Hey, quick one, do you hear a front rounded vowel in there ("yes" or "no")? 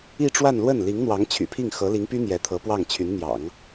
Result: yes